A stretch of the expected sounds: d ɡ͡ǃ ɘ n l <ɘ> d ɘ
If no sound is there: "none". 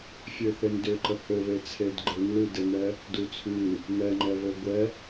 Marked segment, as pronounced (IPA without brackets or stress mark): ʉ